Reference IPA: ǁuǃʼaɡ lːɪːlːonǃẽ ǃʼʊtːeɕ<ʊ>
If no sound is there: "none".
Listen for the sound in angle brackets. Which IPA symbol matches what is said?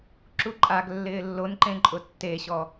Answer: ɔ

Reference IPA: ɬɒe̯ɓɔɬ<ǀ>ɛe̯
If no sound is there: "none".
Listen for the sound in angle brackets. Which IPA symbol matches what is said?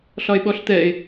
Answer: t̪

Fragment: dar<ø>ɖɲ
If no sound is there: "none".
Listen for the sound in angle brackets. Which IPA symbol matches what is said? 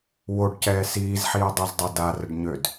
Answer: ə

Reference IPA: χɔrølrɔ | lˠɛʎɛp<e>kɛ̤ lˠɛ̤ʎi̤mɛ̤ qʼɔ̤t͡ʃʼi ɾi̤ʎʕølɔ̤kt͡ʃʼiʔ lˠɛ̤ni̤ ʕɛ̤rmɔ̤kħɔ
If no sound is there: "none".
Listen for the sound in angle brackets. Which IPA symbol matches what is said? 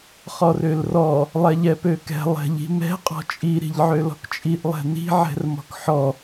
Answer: ø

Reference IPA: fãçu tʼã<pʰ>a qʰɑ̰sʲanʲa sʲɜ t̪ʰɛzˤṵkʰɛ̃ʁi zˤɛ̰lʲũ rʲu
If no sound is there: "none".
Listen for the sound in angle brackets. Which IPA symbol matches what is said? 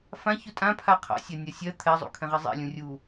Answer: pʰ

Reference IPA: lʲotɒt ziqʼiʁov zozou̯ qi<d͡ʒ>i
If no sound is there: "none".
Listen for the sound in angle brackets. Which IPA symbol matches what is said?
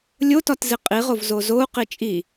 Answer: t͡ʃʼ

